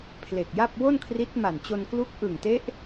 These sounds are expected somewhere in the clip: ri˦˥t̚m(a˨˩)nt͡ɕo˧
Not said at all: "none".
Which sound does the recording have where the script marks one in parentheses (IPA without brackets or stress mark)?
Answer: a˨˩